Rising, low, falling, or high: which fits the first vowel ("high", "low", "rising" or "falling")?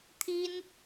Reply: high